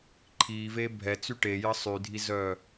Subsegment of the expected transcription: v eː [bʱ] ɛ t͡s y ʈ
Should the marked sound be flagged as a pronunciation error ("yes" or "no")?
no